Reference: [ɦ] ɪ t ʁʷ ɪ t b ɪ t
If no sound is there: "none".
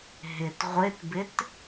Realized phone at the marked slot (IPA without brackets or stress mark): ɦ